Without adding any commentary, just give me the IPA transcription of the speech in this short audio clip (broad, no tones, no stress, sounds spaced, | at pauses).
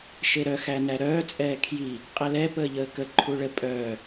ʃ e ɾ œ x æ n æ ɾ œː t͡sʼ ɛː kʰ j i | qʼ ɛ l ɛ p əː ʎ əː k ə ǃʰ u ɭ ə pʼ œː